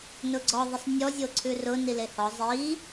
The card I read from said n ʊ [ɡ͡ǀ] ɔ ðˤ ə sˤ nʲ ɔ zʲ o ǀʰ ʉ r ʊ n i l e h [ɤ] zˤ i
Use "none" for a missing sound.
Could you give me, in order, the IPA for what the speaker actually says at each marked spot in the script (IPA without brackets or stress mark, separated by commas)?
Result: ɡ͡ǀ, ɔ